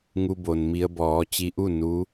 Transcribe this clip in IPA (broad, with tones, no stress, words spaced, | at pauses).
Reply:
ŋu˧bo˩nmi˧ə̯ bɔː˩˧t͡ɕi˧ʔu˥˨ nu˧˥